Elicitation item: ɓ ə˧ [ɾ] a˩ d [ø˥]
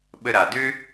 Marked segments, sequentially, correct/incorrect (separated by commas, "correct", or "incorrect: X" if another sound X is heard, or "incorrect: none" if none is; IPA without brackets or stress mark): correct, correct